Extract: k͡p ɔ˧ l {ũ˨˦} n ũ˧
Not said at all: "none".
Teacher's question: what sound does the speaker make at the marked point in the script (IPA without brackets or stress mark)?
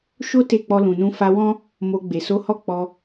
ũ˨